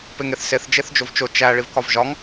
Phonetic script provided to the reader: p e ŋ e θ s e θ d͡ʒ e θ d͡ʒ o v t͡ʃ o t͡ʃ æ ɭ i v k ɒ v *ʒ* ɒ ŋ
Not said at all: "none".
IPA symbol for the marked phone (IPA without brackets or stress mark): ʒ